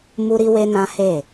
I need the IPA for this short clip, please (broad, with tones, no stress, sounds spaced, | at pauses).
m u˦ ɾ i˦ w e˦ n ã˦ h e˦˨